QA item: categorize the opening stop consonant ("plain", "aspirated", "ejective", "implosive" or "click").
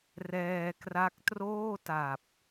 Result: plain